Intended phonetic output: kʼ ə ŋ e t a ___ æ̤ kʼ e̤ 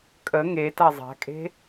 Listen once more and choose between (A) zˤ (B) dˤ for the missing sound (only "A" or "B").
A